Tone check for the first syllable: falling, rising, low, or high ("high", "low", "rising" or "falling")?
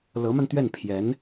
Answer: rising